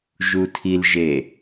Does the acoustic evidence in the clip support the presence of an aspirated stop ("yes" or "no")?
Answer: yes